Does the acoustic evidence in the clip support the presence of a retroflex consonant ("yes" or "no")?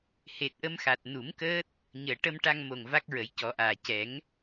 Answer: yes